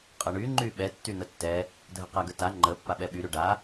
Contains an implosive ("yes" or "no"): yes